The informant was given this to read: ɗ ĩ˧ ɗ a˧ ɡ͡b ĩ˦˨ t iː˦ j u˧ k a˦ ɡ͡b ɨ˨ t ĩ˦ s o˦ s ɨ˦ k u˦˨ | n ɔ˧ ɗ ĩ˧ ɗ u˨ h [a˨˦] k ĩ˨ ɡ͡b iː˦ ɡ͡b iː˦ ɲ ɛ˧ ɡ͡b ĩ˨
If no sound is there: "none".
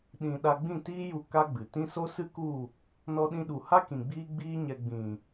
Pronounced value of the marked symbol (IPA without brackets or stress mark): a˦